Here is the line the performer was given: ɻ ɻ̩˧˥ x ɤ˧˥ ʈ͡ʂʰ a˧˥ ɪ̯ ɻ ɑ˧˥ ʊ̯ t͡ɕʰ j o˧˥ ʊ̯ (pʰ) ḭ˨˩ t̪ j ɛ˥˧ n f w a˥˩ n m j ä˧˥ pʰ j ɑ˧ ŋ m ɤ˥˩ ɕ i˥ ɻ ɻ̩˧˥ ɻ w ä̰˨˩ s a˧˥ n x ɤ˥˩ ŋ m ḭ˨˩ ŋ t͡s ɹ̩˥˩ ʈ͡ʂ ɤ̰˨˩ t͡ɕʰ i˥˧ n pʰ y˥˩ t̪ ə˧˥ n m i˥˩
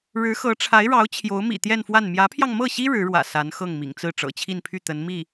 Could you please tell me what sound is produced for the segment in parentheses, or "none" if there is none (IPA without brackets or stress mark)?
m